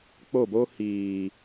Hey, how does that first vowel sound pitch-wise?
falling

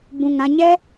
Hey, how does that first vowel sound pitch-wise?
low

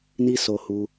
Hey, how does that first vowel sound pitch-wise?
high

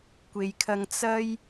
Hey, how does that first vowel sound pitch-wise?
low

